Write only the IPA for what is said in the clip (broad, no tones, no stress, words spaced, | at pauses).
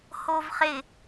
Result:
hoːvχɪ